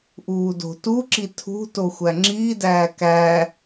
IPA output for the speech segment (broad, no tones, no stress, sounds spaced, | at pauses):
ʔ uː d o̤ t u ǁ i tʰ ṳ t o xʷ æ ŋ͡ǁ iː d æː k æ